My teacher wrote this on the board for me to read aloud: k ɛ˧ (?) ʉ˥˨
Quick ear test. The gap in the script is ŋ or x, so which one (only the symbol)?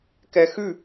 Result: x